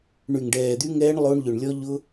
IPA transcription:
ɳy˨ŋɖɛː˨d̪y˧ŋɛː˧ɳ lˠo˧ɳʎʏ˨ɳlʲɔ˧ ʎʊ˧

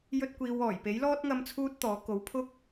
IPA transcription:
jɵ˥t̚kʷiː˧w ɔː˨˩jpe˨˥jlɔː˥t̚ ŋɐ˥mt͡sʰuː˥t̚t̪ɔː˨˥ ko˨˥wpʰʊ˥k̚

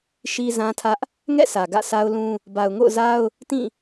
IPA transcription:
ʃi˦zã˦tʰä˦ʔ | ŋɛ̰˦˨ sʰä˨ɡä̰˦˨sa˦ʊ̯lũ˦ | ba˨ʊ̯ŋo̰˦˨ʊ̯za˦ʊ̯ | tĩ˦˨

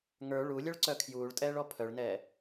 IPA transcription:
ŋə˞ ɭulʲœɭǀœ kʰjuːɭtʼɛːɭɔ pʰœɭnɛː

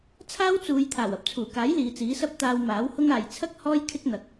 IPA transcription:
t͡sʰaː˥wt͡suː˨˧j t̪ʰaː˨˩wɐ˨˥p̚t͡sʰuː˨˩kaː˨˥j liː˨˧t͡siː˨˥sɐ˥p̚ t̪aː˧wmaː˨˥whʊ˥ŋ aː˨jt͡sʰɐ˥k̚ hɔː˥j kʰɪ˥k̚n̪ɐ˨k̚

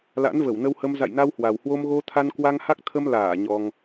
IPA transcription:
la̰˧˥nvə˧˩wnə˧whə˧m za̰˧˨jna˧whwa˨˩whwo˧m ɣo˧t̪ʰa˧nkwa˧ŋha˦˥k̚ t̪ʰə˧mlaː˧˩ ɲɔ˧ŋ

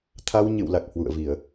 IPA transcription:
t̪ʰa˧wɲɨ̰˧˨wla˨˩k̚ hwṵ˧˨ə̯vi˧˩˨ə̯

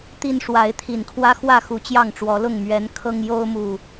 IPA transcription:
t̪i˦nʂwa˨˦ɪ̯t̪ʰi˨˩nkʰwä˦ xwä˥˨xu˨˦ t͡ɕjɑ˥˨ŋʈ͡ʂwɔ˨˦lʊ˥˨ŋ mɥɛ˨˦n kʰɤ˦ŋjo˦ʊ̯mu˨˩

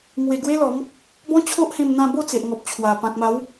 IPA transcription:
ŋwe˧ ɡwe˦lɔ˨˦m | bɔ̃˦t͡ɕʰo˦ʔ hẽ˧mn̪ã˧ bo˥˧t͡se˨ʔŋɔ˨p̚t͡ɕʰwa˨˩ pã˨k̚ma˨˦w

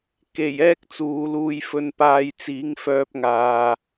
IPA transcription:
ke˨˩j ɛː˥k̚t͡suː˨˧luː˧jfɵ˧n paː˨j t͡siː˨˥ŋfœː˧p̚ŋaː˨

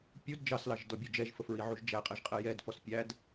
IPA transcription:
pʲud d͡ʒɑslɑʒdɔbʲʊ d͡ʒɛʒfəfɹiʕuʒ d͡ʒæqʼɛʒqʼɛ jɛdfɔs pʲæd

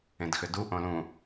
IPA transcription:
ẽdxʏdu ʔõlũ

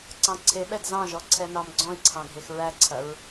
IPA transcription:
ǀɑ̃ǀʰeɓɛd zɑ̃ʒɔ ǀʰɛnɑmɡ͡ǀɔ̃i̯ǀʰɑ̃ ɡʱexɹæǀʰɐɹ

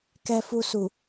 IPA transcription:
kɛ˧fu˧su˨

